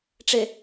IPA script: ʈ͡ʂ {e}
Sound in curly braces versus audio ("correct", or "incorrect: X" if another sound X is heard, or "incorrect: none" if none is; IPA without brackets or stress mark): correct